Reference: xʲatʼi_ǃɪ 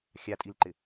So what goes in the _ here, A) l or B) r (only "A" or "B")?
A